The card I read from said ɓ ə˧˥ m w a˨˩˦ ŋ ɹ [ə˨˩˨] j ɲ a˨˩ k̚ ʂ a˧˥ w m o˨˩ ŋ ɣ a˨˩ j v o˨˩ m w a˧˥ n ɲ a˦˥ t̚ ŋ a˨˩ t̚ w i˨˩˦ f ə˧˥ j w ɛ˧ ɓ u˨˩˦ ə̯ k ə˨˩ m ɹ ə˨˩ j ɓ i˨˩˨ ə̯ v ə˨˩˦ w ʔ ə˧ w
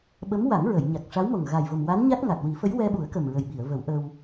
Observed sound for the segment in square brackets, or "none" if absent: ə˨˩˨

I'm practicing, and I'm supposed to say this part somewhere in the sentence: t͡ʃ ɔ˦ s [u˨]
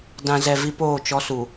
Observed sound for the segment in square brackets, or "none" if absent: u˨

